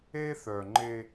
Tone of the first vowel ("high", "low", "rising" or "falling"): high